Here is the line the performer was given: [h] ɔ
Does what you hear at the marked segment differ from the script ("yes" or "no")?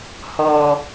no